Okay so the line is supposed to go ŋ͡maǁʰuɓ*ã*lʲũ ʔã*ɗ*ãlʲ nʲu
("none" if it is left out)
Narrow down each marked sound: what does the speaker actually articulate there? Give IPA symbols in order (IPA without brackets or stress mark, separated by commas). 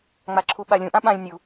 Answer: a, ɓ